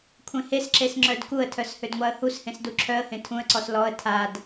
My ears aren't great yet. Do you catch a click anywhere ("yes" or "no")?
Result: yes